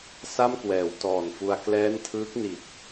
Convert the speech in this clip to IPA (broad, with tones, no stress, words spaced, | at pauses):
sa˥˩mkwɛː˩˦w tɔː˨˩nfu˧a̯ klɛː˦˥ntʰɯː˦˥k̚ni˨˩t̚